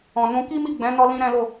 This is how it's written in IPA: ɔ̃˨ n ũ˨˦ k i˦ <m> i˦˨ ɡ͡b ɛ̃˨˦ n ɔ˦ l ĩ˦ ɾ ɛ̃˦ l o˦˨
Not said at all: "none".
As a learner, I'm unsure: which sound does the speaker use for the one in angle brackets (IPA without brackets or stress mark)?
m